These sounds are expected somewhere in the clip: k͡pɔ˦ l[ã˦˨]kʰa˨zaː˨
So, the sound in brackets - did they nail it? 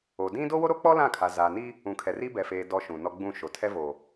yes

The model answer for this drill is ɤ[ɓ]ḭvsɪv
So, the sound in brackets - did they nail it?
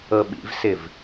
yes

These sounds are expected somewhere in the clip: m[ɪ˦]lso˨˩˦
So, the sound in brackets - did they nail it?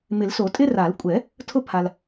no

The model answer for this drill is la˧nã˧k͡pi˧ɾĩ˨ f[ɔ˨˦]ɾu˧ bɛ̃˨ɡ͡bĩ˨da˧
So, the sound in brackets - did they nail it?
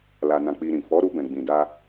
yes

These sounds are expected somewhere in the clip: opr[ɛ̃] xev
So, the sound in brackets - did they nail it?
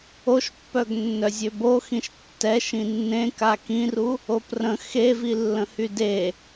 no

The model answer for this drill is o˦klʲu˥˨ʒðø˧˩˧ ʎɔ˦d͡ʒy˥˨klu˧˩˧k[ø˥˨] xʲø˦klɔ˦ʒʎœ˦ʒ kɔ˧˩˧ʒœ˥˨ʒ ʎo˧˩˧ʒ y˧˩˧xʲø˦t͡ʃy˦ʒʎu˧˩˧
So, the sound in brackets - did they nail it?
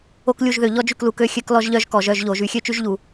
yes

